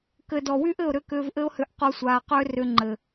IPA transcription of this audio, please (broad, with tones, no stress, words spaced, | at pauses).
kɘ˨dɔ˨wy˦ʔ ɘ˦˨ʊ̯ɾʏ˦kʏː˧v ʔɘ˦ʊ̯hʏ˨˦ʔ qo˧sʷaː˨qʏː˦ rʏ˧ŋ͡ǃɘ˨